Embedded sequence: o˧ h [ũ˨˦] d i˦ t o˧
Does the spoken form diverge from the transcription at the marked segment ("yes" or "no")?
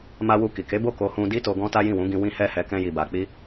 yes